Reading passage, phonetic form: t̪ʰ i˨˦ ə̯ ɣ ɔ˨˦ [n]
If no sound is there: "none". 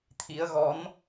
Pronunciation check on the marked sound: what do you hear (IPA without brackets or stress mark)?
n